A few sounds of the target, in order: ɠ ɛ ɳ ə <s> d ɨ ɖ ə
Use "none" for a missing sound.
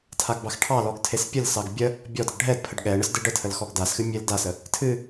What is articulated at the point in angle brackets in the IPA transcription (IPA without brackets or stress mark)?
s